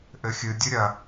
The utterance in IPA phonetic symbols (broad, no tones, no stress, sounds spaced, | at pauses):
ʔ ɘ xʲ ɨ dʲ ɨ ɾʲ ɐ